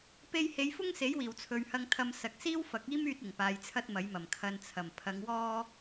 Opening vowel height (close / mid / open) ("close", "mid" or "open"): mid